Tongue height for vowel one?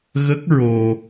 mid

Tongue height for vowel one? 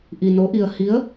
high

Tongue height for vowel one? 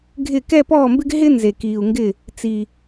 high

